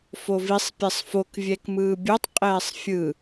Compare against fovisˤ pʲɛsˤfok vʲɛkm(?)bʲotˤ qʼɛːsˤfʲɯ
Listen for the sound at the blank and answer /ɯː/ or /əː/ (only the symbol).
ɯː